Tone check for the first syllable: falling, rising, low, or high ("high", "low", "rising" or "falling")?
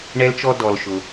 high